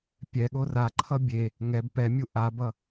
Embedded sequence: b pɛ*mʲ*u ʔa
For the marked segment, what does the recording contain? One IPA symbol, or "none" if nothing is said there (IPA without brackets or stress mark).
mʲ